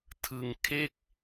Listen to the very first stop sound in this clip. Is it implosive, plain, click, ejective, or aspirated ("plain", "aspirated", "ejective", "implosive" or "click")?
aspirated